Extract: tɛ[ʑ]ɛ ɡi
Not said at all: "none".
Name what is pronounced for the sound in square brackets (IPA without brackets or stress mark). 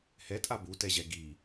ʑ